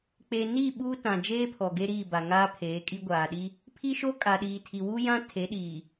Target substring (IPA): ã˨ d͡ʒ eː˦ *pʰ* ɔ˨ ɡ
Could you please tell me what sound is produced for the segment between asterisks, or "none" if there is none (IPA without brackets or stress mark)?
pʰ